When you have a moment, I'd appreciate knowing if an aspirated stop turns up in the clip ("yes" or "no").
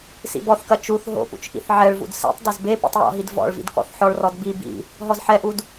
no